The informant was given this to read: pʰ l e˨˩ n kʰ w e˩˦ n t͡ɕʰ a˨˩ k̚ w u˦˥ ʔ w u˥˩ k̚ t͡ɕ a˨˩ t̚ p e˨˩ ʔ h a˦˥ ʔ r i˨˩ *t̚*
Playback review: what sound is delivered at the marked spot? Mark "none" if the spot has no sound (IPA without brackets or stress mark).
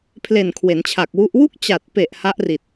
t̚